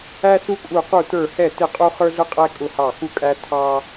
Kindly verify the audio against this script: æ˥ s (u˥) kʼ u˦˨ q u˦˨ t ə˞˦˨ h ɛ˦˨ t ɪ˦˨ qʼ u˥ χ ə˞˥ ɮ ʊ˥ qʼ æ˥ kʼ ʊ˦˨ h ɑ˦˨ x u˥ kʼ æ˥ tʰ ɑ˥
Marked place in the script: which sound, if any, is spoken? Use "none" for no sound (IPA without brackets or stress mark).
u˥